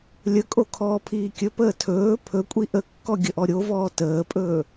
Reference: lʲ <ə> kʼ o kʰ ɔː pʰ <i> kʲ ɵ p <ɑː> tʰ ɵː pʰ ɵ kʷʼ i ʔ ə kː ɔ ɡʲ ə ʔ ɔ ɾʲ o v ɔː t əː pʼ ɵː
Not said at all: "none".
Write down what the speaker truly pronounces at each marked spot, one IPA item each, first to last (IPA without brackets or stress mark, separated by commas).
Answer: ə, iː, əː